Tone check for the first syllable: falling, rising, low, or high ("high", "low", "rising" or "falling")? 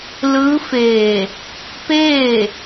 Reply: rising